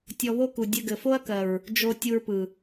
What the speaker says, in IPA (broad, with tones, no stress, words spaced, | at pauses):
tʲɔ˧βo˦ku˨ dʲɘ˧ɡɘ˨fo˦ɐ̯kɜ˨ɹ | d͡ʒo˧ tʲu˧ɹpɯ˨